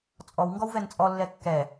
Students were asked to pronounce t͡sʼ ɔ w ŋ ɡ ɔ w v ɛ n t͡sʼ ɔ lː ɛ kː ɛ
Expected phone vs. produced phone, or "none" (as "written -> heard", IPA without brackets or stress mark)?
none